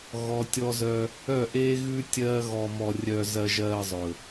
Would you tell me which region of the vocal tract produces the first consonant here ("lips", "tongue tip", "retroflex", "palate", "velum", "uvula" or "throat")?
velum